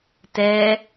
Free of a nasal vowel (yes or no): yes